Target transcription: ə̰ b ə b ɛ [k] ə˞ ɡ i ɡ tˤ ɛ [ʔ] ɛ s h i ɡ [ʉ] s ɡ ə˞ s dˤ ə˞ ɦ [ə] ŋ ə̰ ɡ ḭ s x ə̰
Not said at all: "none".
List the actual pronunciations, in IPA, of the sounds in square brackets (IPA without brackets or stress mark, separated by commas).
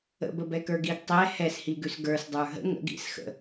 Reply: k, h, ʉ, ə̰